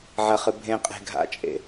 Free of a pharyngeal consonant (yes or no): no